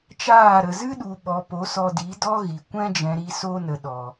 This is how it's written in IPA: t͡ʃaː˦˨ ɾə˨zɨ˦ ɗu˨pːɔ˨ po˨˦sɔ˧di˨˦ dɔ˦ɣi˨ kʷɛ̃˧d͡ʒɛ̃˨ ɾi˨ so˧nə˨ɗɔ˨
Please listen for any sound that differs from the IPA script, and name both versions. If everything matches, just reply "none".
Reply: pː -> ɓ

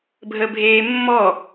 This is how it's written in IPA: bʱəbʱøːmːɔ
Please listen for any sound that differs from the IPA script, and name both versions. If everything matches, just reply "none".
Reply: øː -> eː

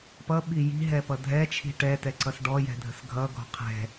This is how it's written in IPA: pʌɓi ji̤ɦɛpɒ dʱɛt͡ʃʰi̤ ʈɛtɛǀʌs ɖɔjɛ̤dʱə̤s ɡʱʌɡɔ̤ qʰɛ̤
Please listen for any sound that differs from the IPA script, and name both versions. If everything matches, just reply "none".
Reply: ɒ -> ʌ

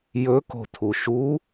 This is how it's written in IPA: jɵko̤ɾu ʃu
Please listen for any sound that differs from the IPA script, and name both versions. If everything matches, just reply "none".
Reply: ɾ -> tʰ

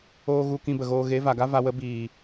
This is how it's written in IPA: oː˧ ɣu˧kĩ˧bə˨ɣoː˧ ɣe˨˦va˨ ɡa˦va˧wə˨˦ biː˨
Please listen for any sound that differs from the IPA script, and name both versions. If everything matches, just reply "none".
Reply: none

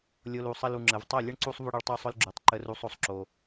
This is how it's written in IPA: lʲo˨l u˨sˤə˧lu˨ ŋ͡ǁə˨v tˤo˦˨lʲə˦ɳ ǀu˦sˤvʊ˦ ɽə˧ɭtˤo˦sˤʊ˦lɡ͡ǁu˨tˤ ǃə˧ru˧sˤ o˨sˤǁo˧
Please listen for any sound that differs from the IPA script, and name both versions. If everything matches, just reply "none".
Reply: none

